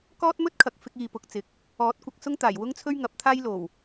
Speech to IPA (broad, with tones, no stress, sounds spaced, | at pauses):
k ɔː˥ t̚ m ɵ˥ t̚ kʰ ɐ˨ k̚ f ɪ˧ k̚ iː˨ p ʊ˨ k̚ t͡s ɪ˨ k̚ | ɔː˨˥ t̚ kʷ ɐ˧ k̚ s ʊ˥ ŋ t̪ aː˨˩ j w ʊ˥ ŋ t͡sʰ ɵ˥ ɥ ŋ ɐ˨˥ p̚ t̪ʰ aː˥ j l o˨˩ w